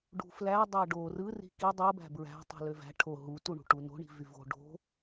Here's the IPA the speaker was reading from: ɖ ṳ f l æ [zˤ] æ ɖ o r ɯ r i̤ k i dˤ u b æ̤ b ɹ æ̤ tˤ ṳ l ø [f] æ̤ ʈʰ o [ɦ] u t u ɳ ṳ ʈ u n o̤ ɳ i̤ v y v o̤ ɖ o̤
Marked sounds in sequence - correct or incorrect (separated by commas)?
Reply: incorrect, incorrect, correct